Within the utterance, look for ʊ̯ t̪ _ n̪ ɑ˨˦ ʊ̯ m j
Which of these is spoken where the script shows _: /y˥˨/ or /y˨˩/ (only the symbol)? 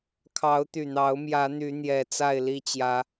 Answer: y˨˩